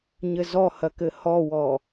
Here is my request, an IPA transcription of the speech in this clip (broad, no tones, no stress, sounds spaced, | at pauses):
ɲ ɘ z ɔ h ɐ k ɘ h ɔ w ɔ